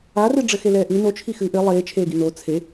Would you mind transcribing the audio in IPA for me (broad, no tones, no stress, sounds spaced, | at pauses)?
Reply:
a r ɨ ɖ͡ʐ ɘ x e l ɛː ʔ ɨ n o t͡ʃʰ i x ɨː ʔ ɘ lˠ eː t͡ʃʰ eː ɡ i n o t͡sʰ e